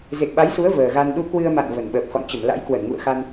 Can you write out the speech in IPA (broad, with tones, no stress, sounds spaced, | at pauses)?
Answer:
z e˨˩ k̚ ɓ a˨˦ j s u˨˦ ə̯ v əː˨˩ ɣ a˧ n ɗ u˧ k w ɨ˧ ə̯ m a̰˧˨ n v ə˨˩ n ɓ əː˨˩ p̚ x ɔ̰˧˨ n t͡ɕ ə˧˩ m l a̰˧˥ j k w ə˧˩ n ŋ ṵ˧˨ ə̯ x a˧ n